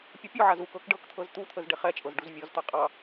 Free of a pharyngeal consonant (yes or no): no